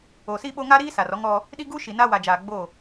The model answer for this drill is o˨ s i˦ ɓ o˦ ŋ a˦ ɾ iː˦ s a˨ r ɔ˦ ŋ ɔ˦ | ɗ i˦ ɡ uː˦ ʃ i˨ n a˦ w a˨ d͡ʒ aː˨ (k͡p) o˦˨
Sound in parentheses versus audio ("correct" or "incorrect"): incorrect